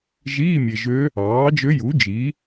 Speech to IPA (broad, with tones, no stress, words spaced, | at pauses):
ʒiː˧˥˧mʲe˨ʒø˧˥ | ɑː˩˥d͡ʒø˧˥ju˩˥ d͡ʒi˩˥